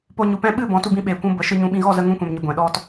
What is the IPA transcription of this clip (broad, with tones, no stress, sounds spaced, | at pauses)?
p o˧ ɲ u˨ p ɛ̃˧ ɓ ɨ˦˨ b ɔ̃˨˦ t u˧ b ĩ˧ ɓ eː˨ kʷ ũ˧ b ə˨˦ ʃ ɨ˧ ɲ ũ˧ ɓ ĩ˧ ɣ ɔ˦˨ z ə˧ ŋ ũ˧ kʷ ɛ̃˨ m ɲ ə˨ ɡʷ ɛ̃˨ ɗ ɔ˦ t